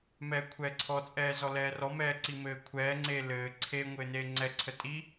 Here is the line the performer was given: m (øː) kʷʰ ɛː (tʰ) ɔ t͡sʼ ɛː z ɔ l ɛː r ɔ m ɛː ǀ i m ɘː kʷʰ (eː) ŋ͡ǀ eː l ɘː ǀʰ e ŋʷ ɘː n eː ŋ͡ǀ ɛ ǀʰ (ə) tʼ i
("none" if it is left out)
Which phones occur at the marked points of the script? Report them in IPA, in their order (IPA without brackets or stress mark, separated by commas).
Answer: ɛː, ǀʰ, ɛː, ə